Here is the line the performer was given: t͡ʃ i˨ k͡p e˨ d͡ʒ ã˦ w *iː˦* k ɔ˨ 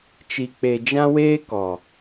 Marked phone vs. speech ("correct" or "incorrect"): incorrect